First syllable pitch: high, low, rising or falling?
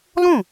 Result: falling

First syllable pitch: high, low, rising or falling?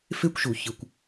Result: high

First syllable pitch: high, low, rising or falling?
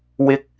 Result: high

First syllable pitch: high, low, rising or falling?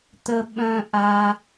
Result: low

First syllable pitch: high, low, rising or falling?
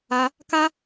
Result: high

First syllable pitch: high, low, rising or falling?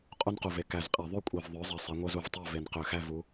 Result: high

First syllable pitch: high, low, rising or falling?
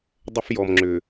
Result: high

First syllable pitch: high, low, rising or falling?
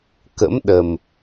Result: rising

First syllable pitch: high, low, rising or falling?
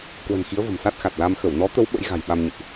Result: low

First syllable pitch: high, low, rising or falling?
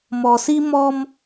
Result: low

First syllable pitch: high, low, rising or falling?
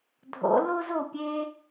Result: rising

